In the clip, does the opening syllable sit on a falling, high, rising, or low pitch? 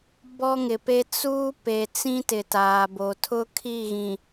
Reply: high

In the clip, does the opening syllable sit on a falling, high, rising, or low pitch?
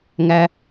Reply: high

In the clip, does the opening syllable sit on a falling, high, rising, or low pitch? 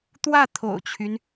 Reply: falling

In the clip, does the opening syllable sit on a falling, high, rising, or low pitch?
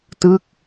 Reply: falling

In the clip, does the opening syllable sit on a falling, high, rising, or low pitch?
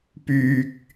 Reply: low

